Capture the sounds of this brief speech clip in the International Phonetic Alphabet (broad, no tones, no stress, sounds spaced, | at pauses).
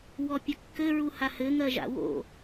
w ɔ pʲ ɘ kː ɘ ɹ u h a h ɘ ŋ ɜ ʒ a̰ w o̰